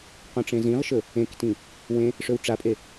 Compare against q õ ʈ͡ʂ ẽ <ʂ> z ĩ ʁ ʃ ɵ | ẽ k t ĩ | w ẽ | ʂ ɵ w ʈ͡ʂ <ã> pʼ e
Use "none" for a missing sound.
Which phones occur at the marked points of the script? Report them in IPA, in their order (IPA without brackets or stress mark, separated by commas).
none, a